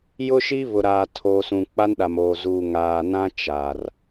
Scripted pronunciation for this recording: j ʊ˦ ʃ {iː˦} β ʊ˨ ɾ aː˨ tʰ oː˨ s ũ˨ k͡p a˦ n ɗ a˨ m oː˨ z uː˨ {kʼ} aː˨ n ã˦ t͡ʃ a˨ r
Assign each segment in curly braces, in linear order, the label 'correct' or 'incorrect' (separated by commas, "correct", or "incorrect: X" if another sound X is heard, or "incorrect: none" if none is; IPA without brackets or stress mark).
incorrect: i˦, incorrect: ŋ